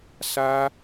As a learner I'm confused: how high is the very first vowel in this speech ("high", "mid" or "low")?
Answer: low